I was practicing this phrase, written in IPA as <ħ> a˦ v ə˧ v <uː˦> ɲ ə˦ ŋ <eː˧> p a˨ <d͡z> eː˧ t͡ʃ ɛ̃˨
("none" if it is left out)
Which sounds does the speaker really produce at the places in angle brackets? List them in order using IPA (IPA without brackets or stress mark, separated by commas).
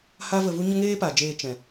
h, u˦, eː˦, d͡ʒ